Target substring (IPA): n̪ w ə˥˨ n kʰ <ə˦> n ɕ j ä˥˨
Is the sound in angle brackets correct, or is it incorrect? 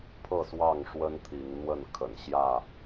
incorrect